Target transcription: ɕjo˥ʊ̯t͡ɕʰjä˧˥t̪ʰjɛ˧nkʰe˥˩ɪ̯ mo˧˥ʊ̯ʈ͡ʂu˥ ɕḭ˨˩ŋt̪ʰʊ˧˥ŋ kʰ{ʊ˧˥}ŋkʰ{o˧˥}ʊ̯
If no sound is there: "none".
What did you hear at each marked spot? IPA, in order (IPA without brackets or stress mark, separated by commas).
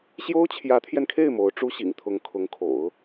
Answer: ʊ˧˥, o̰˨˩˦